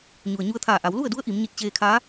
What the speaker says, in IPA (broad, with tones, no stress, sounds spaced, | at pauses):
ɲ u˩ ə̯ ɲ u˧ ə̯ t̪ʰ aː˧˩ ʔ a˩˧ w l u˥˨ ə̯ d u˧˥ ə̯ ʔ i˩˧ m ɲ i˧˩ t̚ t͡ɕ eː˧ kʰ aː˧˥